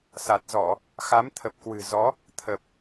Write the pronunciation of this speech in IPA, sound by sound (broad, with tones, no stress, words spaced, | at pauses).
sa˨˩t̚zɔ˧˩˨ | xa˨˦mt̪ʰə˨˩p̚kwɨ̤˨˩zɔ˨˦ | t̪ʰə˨˩p̚